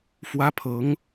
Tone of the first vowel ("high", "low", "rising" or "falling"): high